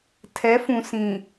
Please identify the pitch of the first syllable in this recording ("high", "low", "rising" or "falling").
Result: rising